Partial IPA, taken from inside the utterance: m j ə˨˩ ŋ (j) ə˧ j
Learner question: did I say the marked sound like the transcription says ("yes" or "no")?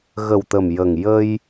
yes